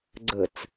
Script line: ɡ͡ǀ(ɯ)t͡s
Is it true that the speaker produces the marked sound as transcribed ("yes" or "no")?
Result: no